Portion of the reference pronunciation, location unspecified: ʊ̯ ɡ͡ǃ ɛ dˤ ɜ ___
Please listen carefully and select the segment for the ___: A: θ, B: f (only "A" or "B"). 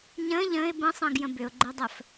B